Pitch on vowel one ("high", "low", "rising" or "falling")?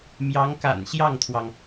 rising